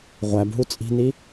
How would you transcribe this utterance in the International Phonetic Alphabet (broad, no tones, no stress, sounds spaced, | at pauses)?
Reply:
ʁʷ æ b ɦ u t͡sʼ i̤ n i